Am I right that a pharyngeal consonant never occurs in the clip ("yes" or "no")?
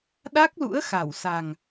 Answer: yes